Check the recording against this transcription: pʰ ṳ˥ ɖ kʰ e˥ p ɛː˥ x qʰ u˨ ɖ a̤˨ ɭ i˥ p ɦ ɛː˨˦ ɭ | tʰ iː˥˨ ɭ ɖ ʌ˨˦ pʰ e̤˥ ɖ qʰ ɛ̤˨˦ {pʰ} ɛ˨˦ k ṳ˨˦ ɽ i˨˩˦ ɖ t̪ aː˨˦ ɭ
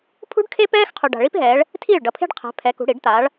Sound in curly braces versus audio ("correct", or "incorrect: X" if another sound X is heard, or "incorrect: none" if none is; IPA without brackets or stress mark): correct